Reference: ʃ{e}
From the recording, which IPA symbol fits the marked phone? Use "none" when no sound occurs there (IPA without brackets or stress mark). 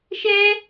ɛ